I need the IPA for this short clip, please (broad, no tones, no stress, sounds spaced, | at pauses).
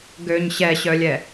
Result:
ɡ ø ɲ ɕ ɛ ɕ œ lʲ ɛ